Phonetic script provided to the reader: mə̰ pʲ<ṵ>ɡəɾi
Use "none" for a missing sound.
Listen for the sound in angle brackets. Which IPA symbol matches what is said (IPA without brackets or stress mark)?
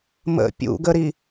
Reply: ṵ